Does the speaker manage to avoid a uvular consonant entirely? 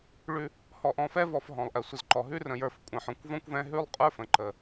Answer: no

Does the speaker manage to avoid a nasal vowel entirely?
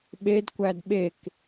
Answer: yes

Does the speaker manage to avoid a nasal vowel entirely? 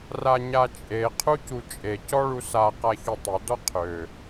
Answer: yes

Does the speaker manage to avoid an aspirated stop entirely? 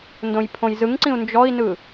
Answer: no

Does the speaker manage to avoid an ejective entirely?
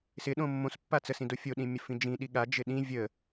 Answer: yes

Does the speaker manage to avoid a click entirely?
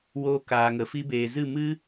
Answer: yes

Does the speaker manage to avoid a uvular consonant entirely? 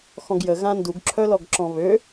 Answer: yes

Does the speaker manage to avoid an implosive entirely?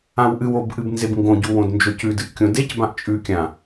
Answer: yes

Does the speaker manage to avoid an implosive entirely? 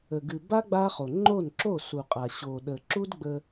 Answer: no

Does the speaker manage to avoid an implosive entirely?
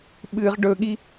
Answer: no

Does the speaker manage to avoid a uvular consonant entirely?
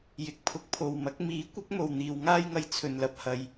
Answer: yes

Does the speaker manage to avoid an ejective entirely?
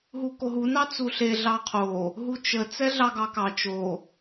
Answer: yes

